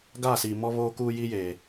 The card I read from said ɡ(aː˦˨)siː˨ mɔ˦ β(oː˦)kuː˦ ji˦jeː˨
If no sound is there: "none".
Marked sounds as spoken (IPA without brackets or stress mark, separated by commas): aː˦˨, oː˦